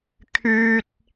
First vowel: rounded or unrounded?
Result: rounded